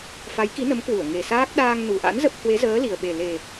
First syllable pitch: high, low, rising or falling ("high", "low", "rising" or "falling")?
rising